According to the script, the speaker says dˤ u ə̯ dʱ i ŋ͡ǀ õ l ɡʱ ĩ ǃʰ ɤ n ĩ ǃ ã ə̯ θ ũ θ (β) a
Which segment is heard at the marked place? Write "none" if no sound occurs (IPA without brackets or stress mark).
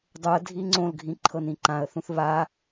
β